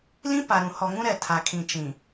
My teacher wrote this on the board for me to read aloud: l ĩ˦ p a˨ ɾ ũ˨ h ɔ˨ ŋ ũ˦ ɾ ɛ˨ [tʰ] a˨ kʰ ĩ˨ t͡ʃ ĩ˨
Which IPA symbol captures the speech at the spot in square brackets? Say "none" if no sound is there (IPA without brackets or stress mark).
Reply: tʰ